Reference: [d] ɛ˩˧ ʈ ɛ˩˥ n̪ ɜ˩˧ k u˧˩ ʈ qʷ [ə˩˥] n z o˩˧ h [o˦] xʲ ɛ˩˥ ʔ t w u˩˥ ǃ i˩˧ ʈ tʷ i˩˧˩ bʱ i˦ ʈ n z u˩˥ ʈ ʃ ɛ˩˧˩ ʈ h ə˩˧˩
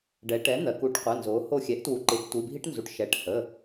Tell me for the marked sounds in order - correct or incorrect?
incorrect, incorrect, incorrect

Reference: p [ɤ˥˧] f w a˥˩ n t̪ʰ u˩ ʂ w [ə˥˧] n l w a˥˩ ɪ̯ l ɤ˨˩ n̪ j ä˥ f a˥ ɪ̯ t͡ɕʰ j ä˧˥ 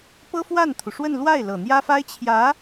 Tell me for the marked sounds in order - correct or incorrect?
incorrect, correct

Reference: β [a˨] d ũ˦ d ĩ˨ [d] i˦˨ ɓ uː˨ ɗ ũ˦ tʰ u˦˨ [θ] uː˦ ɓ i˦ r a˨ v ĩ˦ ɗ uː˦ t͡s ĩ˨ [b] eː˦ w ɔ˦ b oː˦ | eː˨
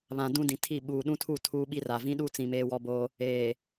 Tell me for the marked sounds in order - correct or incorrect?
incorrect, incorrect, incorrect, incorrect

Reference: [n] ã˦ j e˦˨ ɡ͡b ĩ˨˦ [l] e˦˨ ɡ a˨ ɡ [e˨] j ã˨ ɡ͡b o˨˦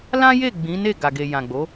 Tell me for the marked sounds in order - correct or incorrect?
incorrect, incorrect, correct

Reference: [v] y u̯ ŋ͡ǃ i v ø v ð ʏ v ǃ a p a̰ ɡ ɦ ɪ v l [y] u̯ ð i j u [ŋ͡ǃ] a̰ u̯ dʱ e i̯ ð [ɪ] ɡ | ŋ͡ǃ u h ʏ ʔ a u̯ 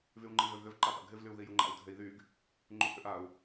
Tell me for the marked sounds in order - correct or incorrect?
correct, correct, correct, incorrect

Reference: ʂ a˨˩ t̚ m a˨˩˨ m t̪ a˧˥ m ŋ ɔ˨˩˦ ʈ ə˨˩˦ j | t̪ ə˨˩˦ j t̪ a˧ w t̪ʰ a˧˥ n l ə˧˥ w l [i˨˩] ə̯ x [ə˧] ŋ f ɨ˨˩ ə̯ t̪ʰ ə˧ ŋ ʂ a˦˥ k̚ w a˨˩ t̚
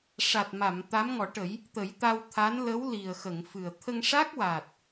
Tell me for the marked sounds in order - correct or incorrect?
correct, incorrect

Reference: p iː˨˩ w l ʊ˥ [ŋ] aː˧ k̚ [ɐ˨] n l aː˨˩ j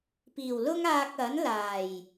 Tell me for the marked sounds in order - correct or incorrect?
correct, incorrect

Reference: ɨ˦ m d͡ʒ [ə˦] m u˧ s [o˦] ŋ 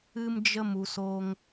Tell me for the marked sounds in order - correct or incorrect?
correct, correct

